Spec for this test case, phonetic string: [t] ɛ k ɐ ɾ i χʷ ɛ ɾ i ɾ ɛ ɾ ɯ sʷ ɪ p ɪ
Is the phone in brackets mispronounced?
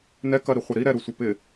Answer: yes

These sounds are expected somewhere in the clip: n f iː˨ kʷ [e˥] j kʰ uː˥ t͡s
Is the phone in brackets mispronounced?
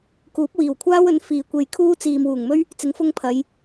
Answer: yes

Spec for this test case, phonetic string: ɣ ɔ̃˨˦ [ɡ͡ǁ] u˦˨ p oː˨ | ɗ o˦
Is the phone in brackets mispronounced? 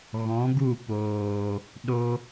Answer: yes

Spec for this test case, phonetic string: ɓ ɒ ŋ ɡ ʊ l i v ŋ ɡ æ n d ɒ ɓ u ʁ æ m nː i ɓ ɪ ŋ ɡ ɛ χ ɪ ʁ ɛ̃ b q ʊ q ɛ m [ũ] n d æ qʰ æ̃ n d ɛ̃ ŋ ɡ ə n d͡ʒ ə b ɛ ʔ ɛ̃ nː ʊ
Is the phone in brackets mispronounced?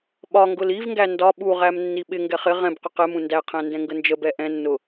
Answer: no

